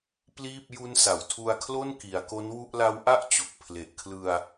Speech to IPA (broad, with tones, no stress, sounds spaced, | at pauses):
p l iː˥˩ p̚ j u˦˥ n s a˩˦ w tʰ u˧ a̯ kʰ l o˥˩ n k i˩˦ a̯ k o˦˥ n w u˥˩ ʔ l a˦˥ w ʔ a˥˩ ʔ t͡ɕ o˨˩ k̚ pʰ l e˨˩ ʔ kʰ l ɯ˧ a̯